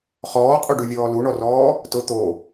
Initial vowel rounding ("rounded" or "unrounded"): rounded